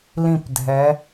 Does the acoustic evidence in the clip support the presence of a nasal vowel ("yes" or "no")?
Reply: yes